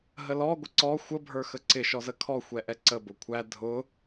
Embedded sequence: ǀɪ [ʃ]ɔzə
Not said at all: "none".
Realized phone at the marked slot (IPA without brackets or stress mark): ʃ